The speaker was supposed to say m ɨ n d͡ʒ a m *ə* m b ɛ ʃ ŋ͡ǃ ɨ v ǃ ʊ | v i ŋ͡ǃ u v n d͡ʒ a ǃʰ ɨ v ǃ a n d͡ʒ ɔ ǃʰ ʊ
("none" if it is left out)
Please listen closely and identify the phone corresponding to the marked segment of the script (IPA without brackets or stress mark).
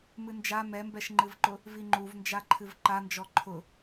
ɛ